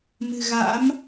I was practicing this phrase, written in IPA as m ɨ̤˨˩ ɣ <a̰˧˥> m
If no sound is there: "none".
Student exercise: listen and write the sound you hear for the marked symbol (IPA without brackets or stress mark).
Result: a̰˧˥